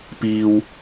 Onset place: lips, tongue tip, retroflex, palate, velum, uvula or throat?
lips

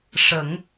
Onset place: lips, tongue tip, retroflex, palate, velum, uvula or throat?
retroflex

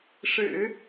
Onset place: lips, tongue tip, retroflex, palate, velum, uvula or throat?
retroflex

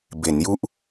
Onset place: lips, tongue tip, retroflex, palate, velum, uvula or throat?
lips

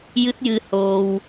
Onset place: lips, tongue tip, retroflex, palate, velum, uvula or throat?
palate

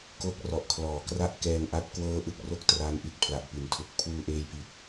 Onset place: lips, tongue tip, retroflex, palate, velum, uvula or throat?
velum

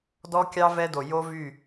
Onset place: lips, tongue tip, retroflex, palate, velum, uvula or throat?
tongue tip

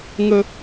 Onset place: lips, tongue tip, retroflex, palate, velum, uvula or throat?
velum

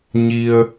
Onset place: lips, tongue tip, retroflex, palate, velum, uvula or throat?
palate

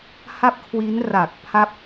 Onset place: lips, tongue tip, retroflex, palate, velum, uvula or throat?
throat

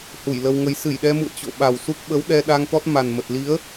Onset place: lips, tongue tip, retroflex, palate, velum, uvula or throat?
throat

